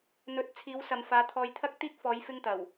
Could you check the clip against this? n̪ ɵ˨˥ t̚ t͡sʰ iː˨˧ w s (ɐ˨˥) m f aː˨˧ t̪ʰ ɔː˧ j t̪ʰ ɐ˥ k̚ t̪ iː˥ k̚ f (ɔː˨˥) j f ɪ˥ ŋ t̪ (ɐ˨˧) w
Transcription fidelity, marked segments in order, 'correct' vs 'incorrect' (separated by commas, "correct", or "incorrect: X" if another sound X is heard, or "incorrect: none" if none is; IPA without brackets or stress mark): incorrect: ɐ˨, incorrect: ɔː˨˧, incorrect: ɐ˨˩